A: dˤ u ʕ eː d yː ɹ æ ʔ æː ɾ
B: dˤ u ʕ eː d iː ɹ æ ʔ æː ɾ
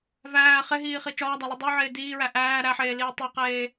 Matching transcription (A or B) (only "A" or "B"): B